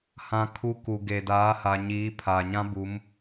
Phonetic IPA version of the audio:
h ã˦ kʰ u˦ k u˨ ɡ e˨ d aː˨˦ h a˨ ɲ iː˨˦ pʰ aː˨ ɲ ã˦ b u˨˦ m

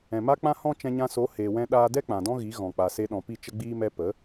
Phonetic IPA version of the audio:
ɛ̃˨ m a˦ k͡p ã˦ h ɔ̃˦ t͡ʃ ɛ̃˧ ɲ ã˧ s o˨˦ h e˧ w ɛ̃˦ ɗ aː˦ d ɛ˦ k͡p ã˨ d ɔ̃˦ ɣ i˨˦ ɣ ɔ̃˨ k͡p a˨ s e˧ ɗ ɔ̃˨ p i˦˨ t͡ʃ ə˦ ɡ͡b iː˦ m ɛ˦ p ə˨˦

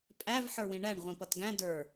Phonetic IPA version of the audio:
pʼ æ v ħ ə˞ w ĩ ɳ æ ɳ ʁʷ ĩ p ʌ t ɡ æ̃ d ə˞

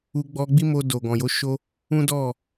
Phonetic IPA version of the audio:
u˧ ɡ͡b ɔ˧ ɡ͡b i˦ m o˧ d o˨ ɡ ɔ̃˨ j o˨˦ ʃ o˦ | ũ˦ d ɔ˦˨

